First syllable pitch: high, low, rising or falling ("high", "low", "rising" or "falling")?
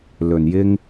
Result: low